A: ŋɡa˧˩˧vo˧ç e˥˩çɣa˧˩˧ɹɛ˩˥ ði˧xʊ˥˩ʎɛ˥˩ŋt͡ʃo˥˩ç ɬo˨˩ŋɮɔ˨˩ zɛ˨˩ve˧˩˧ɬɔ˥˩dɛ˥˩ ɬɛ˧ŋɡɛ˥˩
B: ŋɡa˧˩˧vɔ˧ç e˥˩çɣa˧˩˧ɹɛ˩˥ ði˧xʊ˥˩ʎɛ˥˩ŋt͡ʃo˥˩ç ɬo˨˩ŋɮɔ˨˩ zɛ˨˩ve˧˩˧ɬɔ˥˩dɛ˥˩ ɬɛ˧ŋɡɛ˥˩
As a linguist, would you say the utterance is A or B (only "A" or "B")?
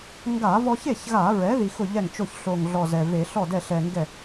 B